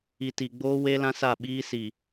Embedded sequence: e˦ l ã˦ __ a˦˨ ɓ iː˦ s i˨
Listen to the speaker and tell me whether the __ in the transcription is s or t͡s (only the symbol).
s